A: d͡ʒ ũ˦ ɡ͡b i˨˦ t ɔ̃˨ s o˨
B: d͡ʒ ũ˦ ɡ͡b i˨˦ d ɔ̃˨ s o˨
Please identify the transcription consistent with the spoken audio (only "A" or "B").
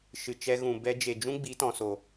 A